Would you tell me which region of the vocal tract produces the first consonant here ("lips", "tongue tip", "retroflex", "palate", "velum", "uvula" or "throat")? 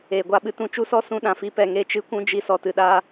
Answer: velum